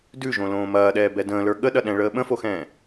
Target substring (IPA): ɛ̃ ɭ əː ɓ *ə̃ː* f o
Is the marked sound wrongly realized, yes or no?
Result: yes